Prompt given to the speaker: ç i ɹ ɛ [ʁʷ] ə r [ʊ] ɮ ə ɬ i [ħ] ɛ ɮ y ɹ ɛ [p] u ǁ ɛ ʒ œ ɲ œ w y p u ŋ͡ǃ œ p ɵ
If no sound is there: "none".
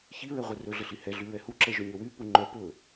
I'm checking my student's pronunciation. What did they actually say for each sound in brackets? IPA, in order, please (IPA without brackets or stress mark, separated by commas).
ʁʷ, ɵ, h, h